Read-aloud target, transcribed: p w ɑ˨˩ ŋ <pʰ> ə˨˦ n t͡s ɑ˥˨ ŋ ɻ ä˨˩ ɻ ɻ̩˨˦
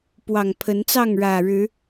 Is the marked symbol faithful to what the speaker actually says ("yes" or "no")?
yes